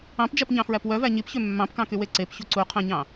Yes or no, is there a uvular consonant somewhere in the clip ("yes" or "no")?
yes